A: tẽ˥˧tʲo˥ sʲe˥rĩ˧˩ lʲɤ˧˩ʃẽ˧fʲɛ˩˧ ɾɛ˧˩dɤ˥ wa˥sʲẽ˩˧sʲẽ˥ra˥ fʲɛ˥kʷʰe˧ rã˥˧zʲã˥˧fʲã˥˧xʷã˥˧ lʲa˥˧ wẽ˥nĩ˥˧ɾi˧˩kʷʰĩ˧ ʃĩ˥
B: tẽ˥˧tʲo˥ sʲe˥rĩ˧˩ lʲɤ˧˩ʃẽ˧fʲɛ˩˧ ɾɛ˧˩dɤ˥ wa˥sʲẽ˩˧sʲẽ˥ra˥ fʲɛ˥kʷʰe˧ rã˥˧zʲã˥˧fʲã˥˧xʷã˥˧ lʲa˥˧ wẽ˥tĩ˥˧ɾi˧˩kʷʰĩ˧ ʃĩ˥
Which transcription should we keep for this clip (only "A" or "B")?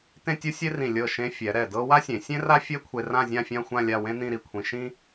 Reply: A